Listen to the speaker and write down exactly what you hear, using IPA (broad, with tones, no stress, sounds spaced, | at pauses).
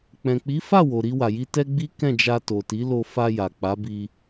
k͡p ɛ̃˨ k͡p i˨˦ f a˦˨ w o˨ ɾ i˧ w a˨ j i˧ t ɛ˦ ɡ͡b i˦ k ɛ̃˦˨ d͡ʒ a˧ t o˨ t i˨˦ l o˧ f a˧ j a˨ k͡p a˨˦ b i˧